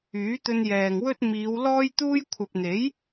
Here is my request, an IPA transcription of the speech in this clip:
yː˨˥t̪ɵ˧n jɛː˨ŋwɵ˥t̚ miː˨˧w lɔː˥jt̪uː˥j kʷʰɐ˨p̚n̪e˨˥j

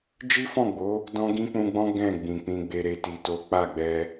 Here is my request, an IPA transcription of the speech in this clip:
d͡ʒi˦fɔ̃˦˨ɡ͡bo˨˦ | dɔ̃˦ ɡĩ˦k͡pũ˧ɡ͡bɔ̃˦ ɡɛ̃˦˨ɡ͡bĩ˨k͡pĩ˧ɡ͡be˧ ɾe˦ti˧to˦ k͡pa˦˨ɡ͡bɛ˧

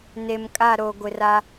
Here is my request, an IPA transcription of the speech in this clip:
ne˨mkʼa˦˨ɾo˨ ɡʷɪ˨ra˦

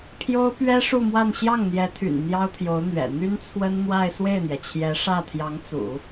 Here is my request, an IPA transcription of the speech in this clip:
pʰjo˥ʊ̯pɥɛ˥ ʂu˥˧mwa˥˧n ɕjɑ˥˩ŋn̪jɛ˧˥t̪ʰy̰˨˩n n̪jɑ˥ʊ̯t̪ʰjo˧˥ʊ̯n̪ɥɛ̰˨˩ n̪y˥nt͡sʰwə˥nn̪wa˥˧ɪ̯ swe˥˩ɪ̯n̪jɛ˩t͡ɕʰjɛ˧˥ ʂä˥˩t̪ʰjɑ˧˥ŋt͡sṵ˨˩˦

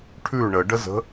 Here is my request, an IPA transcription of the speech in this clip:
ʈʰʉ ɳəɖəzə̤

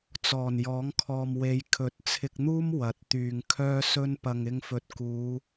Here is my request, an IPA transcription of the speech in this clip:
t͡sɔː˨˩n jɔː˨˥ŋkʰɔː˨mwe˨˧j kʰɵ˨˥t̚t͡sʰɪ˧k̚n̪uː˥m wɐ˨˥t̚t̪yː˨ŋ kʰœː˧sɵ˧n pɐ˨ŋɪ˧ŋfɵ˨t̚ kuː˨˧

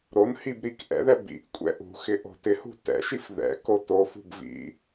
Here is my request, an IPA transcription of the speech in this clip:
ɾonhib ɾikʔɛ̰ðɛ bḭʔkʷʼɛ̰ ʔṳxɪ ʔo̤tɪhṳ tɛ̰ʃif ðɛ̰ko tofṳb vḭ

